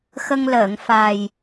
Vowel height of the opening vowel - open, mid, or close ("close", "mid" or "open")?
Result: mid